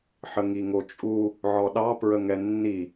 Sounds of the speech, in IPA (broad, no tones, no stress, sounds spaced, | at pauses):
ħ ə ŋ i ŋ o t͡ʃʼ u | ʕ ɔ ɗ ɑ p ɹ ə ŋ ɛ nː i